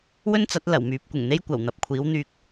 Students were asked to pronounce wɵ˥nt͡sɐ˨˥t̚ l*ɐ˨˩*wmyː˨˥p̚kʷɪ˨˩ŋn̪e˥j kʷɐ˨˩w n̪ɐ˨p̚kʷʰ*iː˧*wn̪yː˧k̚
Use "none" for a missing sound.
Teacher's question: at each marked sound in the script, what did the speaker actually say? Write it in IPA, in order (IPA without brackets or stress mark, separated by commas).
ɐ˨˩, iː˨˥